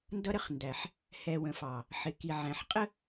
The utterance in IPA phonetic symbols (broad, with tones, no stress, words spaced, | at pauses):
ndʌ˦ɾə˦χ ndæ˨ħ | hɛ˨wə̃˨fɑ˨ | ħɪ˨ki˨ʕæ̃˨ħ qʼə˦